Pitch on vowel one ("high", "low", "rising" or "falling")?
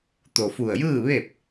low